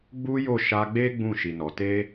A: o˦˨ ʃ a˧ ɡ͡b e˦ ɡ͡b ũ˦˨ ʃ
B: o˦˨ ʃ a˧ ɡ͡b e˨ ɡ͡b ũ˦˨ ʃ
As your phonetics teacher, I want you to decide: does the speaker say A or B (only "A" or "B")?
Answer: A